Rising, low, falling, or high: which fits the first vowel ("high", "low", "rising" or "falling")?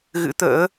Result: rising